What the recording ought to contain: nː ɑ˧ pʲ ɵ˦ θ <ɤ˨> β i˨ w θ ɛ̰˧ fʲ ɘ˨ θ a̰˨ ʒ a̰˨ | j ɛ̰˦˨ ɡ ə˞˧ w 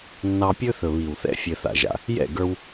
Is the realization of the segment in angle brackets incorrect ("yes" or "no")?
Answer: yes